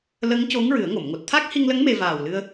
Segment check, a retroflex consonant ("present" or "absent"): absent